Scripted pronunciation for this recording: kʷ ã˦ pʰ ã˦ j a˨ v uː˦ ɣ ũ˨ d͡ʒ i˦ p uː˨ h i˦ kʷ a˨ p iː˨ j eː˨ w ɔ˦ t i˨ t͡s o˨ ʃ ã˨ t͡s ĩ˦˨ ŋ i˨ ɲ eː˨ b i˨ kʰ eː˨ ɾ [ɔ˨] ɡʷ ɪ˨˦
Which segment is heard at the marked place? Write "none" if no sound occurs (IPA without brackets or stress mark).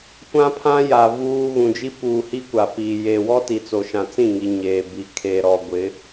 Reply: ɔ˨